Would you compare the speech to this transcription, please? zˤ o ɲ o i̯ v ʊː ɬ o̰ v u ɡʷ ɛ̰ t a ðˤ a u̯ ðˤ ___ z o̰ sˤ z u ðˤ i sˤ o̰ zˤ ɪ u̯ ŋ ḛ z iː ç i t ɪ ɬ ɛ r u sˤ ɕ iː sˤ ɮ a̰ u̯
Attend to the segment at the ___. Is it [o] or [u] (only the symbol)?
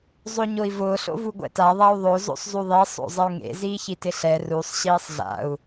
o